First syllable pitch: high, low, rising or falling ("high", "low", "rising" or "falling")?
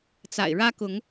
low